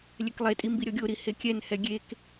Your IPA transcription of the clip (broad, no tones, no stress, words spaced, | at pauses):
lʲɛklˠetʼi mbiɾʲɔɡʲoɾi hekʲɛnhɛ ɡʲek